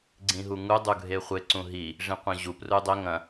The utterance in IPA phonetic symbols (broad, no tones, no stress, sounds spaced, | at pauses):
ɡ͡ǀ ĩ ɦ u ŋ u dˤ u ɡʱ e χʷ e ǀ ũ ɦ i | ʐ ĩ qʷ ɐ̃ ʑ u p r u dˤ ɵ ŋ ɐ̃